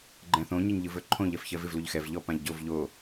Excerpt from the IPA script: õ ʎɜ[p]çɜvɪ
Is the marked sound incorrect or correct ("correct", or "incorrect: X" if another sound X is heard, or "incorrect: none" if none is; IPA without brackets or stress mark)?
incorrect: f